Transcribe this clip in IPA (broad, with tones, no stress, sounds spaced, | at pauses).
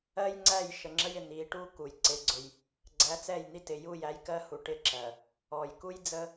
ɜ˦ j ŋ͡ǀ æ˦˨ j ʃ ə˨ ŋ͡ǁ ə˦ j ɪ˨ n̪ i˨˦ ʈ u˦ k u˨ j ǀ ɪ˦ ɡ͡ǀ ʊ˦ j | ɡ͡ǀ æ˨˦ t͡s ɛ˦˨ j n̪ i˦ t ɪ˨ j u˦˨ j æ˦ j k ɜ˦ h u˨ ʈ ɪ˦ ǁ ɜ˨ | ɔ˨ j k u˦ j d͡z ə˦